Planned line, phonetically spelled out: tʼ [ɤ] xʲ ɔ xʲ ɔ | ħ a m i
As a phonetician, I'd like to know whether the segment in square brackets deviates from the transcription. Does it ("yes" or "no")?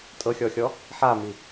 no